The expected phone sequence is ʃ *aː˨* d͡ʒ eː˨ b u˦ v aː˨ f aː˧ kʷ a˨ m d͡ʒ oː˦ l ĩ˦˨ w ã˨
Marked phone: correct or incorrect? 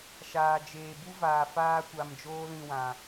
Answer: correct